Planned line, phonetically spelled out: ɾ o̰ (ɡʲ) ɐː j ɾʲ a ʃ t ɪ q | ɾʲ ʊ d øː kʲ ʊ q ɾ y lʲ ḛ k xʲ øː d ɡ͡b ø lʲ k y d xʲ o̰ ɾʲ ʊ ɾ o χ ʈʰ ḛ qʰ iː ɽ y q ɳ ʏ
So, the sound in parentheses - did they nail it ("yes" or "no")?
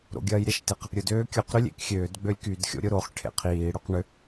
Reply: yes